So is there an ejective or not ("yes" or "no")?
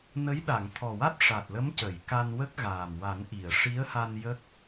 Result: no